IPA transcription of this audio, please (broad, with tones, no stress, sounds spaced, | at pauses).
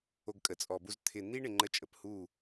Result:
o˧ ɡ kʼ ə˨ t͡sʼ ɔ˨ b u˧ z t̪ʰ ɪ˧ n̪ i˦ ɳ ɪ˧ ŋ͡ǃ ə˦˨ t͡ʃʼ ə˨ p h u˦˨